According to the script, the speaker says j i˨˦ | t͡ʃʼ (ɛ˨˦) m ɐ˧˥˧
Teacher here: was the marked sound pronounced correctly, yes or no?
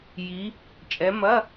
yes